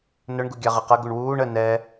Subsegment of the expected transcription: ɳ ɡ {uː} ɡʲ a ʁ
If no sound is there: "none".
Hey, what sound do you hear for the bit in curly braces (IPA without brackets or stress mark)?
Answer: u